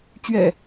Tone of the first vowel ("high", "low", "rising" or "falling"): low